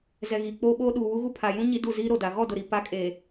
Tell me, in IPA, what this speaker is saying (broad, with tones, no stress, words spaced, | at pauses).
zɛ˨ɣiː˨ k͡poː˦ɓoː˦ ɗuː˨wu˦ɣu˦ pʰa˨jũ˦ ɲi˦du˦˨ ziː˦ɾo˨da˨ ɣɔ˦˨dʊ˨ɾi˨ pa˨˦kʼeː˨